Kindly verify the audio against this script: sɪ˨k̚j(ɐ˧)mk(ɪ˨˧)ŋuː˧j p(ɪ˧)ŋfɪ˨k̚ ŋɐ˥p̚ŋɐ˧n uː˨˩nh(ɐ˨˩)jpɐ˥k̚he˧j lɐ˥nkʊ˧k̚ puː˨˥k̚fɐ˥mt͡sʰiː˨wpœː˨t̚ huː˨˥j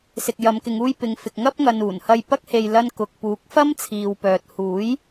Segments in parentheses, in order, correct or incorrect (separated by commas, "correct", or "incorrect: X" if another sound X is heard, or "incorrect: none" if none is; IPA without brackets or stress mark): incorrect: ɐ˨˧, correct, incorrect: ɪ˨, incorrect: ɐ˧